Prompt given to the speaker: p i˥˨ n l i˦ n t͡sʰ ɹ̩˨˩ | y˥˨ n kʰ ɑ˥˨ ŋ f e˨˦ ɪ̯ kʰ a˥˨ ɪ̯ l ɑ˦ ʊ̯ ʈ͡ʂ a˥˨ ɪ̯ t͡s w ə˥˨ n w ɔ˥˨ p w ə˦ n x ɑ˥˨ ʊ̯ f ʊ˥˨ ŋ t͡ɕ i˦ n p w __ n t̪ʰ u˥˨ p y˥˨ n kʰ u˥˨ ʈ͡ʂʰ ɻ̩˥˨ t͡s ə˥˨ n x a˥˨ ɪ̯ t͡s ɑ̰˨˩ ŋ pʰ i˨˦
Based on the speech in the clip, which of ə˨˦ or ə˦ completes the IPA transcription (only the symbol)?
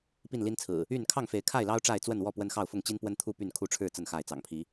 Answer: ə˦